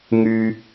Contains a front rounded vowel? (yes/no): yes